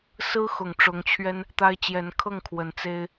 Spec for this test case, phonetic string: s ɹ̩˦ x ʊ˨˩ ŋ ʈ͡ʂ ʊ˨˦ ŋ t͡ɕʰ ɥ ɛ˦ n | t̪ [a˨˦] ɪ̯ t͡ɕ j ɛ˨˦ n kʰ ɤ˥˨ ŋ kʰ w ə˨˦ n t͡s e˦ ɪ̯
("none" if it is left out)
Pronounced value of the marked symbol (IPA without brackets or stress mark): a˦